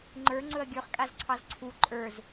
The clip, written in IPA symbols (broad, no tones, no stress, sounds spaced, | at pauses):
ŋ͡ǃ ə˞ ŋ͡ǀ ɵ ɐ̯ ɡʲ ə˞ χ kʼ a z ǀʰ ɑ z ǀʰ u ǃʼ ə˞ z